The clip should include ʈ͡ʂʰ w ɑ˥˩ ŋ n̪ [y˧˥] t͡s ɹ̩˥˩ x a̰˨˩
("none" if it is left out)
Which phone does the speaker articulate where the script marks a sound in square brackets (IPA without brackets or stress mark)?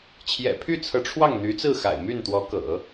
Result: y˧˥